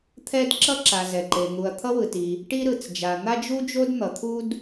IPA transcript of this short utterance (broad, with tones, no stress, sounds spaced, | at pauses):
t̪ʰ ɛ˥ d ǁ ʌ˥ ǁ a˩ z ɛ˩ ǃ e˩ n̪ u˩ ɐ̯ t̪ʰ ʌ˥ w ɯ˩ t i˩ | ʈ i˥ ɾ ɯ˩ t͡s d͡ʒ a˩ n̪ a˥ d͡ʒ u˥ d͡ʒ o˥ d n̪ ʌ˩ t̪ʰ u˥ d